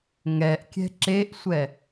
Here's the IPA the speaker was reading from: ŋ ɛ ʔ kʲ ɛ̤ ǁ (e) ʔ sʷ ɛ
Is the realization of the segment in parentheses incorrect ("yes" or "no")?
no